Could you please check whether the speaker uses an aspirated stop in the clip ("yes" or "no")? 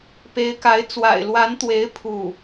yes